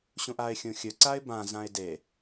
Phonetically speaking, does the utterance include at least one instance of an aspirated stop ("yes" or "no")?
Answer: no